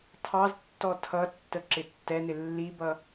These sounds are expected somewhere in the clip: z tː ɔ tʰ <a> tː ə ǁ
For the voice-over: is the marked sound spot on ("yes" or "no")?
no